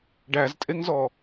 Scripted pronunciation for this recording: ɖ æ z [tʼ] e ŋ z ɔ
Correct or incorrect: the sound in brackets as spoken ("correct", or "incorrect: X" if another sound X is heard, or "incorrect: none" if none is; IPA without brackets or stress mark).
correct